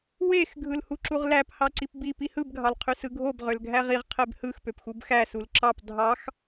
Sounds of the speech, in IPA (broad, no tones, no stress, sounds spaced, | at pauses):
w e x ɡʱ ɯ l h u ǁ u ʁ l æ p h ɑ ǀ i p b i p i h ɯ b ɡʱ ɑ l qʰ y s ɯ ɡʱ o b ʁ ø l ɡʱ æ ʁ i ʁ qʰ e b h ɯ x p ø p x u b x æ s u l ǁ ɑ p dʱ ɑ x